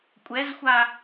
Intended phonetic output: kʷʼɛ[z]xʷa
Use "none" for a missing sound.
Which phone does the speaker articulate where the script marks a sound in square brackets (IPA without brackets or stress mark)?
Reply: z